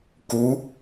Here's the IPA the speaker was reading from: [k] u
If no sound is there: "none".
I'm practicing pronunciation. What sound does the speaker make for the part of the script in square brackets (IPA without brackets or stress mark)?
k